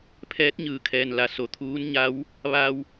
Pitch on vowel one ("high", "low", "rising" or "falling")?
rising